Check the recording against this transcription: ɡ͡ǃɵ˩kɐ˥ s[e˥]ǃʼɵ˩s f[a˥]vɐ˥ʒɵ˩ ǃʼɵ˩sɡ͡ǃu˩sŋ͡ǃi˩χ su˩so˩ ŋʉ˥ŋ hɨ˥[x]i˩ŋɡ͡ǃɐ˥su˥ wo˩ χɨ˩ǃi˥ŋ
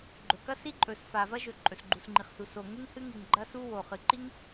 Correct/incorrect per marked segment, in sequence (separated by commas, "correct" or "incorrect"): incorrect, incorrect, incorrect